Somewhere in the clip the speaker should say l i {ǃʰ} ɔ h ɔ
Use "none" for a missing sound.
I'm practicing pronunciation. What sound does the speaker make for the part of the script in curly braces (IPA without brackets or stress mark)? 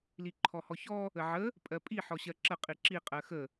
ǃʰ